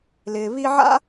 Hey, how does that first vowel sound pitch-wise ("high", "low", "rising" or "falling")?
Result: low